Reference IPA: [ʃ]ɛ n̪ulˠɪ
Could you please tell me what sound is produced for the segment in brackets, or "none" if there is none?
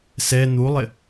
s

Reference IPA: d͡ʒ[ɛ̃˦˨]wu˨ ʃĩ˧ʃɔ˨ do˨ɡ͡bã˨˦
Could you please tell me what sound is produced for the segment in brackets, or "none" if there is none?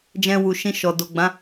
ɛ̃˧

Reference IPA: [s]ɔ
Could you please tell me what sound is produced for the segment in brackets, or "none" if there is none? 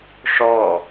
ʂ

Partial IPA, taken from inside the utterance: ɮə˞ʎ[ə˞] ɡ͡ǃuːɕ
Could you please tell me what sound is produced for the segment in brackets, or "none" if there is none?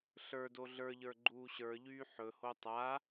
ə˞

